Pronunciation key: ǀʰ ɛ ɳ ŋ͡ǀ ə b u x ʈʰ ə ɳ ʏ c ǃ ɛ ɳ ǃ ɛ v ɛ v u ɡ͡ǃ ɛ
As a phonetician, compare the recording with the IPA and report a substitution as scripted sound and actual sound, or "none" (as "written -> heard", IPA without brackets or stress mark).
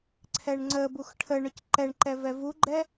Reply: none